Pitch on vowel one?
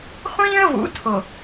high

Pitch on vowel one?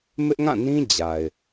high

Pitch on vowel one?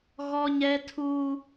high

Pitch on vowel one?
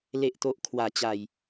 low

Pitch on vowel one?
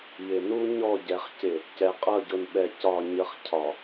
low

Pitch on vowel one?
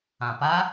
low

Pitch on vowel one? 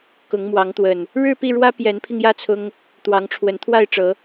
rising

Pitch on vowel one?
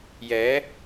rising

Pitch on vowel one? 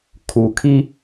low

